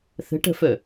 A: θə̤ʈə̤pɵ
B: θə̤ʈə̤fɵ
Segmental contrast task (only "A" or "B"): B